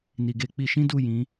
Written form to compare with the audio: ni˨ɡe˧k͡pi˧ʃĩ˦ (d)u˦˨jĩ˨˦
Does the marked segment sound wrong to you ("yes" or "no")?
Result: no